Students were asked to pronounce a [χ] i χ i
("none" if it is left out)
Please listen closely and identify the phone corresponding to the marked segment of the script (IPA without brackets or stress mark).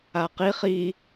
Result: q